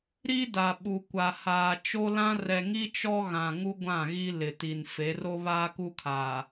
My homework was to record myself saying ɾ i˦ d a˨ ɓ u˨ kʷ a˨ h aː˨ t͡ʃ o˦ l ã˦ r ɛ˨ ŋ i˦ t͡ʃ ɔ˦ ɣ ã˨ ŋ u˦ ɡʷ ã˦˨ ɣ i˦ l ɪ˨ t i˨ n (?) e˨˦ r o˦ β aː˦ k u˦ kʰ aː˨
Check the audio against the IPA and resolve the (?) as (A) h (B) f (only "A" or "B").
B